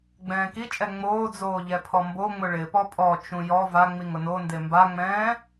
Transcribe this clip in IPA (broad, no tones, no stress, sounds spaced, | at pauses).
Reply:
ɡ͡b ɛ̃ː k i t͡ʃʼ ɛ ŋ͡m oː d͡z oː ʎ ɛ pʰ ɔ m b o ŋ͡m ʊ ɭ ɪ p ɔ pʼ ɔ t͡ʃ ũ j ɔ v a ŋ͡m i ŋ ʊ n o n d e m b a ŋ͡m ɛ̃ː